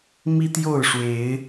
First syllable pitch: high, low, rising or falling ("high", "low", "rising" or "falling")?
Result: high